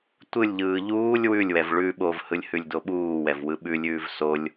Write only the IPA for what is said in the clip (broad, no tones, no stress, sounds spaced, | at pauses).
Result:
tʷ ɯ lʲ ʎ ɯː ʎ uː lʲ w ʉ lʲ w ɛ v ɭ ʉ ɓ o v h ɯ lʲ h ʉ lʲ d o ɓ uː w ɛ v w ɯ ɓ ʉ lʲ ʉː v s o lʲ